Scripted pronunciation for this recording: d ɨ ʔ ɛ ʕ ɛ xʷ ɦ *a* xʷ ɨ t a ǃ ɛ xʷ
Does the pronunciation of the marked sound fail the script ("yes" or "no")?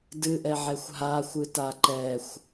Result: no